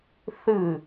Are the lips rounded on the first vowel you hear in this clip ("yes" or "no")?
no